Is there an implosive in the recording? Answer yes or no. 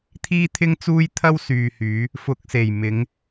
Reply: no